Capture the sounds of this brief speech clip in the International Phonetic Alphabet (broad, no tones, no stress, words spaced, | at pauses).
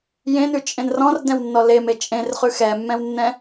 jẽnʉt͡ʃʼẽn rɔ̃rdɛ̃wnːɔ leme t͡ʃʼẽrχʉ xɛmːɛ̃wnːɛ̃